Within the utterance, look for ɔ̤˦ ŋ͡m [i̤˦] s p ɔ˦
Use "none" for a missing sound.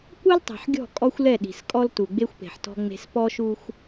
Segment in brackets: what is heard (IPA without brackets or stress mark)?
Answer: e̤˦